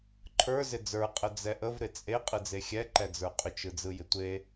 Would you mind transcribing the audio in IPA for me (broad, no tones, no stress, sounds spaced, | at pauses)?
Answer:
ǃʰ ə˞ z ɪ d͡z ə˞ qʼ ə d͡z ɛ ʔ ə v ɾ ɪ t͡sʼ e qʼ ɯ d͡z e xʲ ɛ ǃ ɛ d͡z ə˞ qʼ ʏ t͡ʃ ɯ d͡z ɯ j ɪ tʷ e